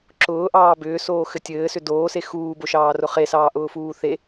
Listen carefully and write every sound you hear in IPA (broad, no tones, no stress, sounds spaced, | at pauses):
ǁ ʊː ʔ ɑː b ʏː s oː x ɘ tʲ ɘː s ʏ d oː s e x uː b o ʃ ɑː r ʊ χ e s ɑː ʔ ʊː f uː θ e